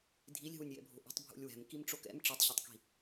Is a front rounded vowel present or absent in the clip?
absent